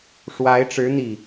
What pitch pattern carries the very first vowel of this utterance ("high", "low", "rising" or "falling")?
rising